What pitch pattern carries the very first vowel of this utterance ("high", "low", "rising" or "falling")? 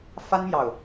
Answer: high